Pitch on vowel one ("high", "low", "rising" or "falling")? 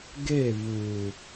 falling